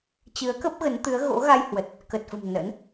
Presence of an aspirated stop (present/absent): absent